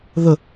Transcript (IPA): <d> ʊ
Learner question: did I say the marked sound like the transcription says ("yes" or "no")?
no